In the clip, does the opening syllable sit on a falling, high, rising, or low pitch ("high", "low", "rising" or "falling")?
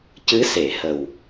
rising